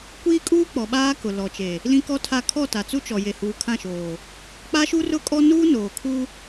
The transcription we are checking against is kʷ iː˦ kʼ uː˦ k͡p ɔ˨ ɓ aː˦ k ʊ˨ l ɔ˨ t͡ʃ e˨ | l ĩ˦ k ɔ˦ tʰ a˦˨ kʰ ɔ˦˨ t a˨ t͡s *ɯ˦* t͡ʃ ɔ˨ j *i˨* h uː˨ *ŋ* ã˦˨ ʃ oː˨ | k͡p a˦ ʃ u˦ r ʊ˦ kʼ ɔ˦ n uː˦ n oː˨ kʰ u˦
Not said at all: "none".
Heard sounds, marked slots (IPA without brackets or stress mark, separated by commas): u˦, e˨, kʰ